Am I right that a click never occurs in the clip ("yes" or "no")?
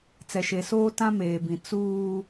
yes